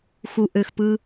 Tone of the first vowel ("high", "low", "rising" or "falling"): low